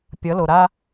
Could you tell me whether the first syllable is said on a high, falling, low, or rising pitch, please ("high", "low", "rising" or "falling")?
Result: rising